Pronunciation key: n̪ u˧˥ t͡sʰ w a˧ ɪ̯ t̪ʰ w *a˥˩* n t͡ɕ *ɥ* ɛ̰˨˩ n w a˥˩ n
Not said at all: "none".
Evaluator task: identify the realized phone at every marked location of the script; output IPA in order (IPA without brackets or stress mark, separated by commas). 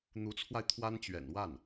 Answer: a˥, ɥ